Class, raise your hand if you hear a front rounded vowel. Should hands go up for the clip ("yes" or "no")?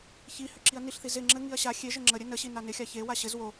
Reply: yes